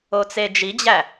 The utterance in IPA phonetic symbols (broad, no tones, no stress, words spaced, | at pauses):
ot͡sed͡ʒid͡ʑæ